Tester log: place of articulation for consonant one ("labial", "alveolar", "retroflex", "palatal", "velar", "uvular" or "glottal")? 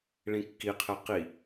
retroflex